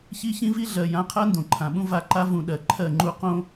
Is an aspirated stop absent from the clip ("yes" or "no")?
no